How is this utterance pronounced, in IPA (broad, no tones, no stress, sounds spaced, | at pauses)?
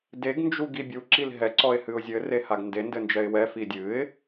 d e ɡ n d͡ʒ u ɡ i bʲ u ǁ i l ɦ ɛ ǀ ɔ ɪ̯ h ɨ ʊ̯ zʲ ɘ r e h a ɡ n d e n d ɘ n d͡ʒ ɛ ɪ̯ w ɛ f i dʲ ɨ ɪ̯